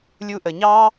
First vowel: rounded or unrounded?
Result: rounded